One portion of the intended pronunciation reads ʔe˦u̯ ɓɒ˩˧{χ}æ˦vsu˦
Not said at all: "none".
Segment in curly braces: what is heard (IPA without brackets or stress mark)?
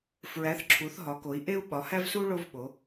h